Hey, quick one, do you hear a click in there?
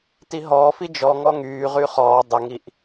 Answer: no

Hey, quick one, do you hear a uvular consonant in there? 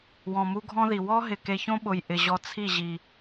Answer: no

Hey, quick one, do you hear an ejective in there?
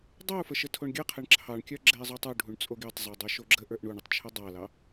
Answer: yes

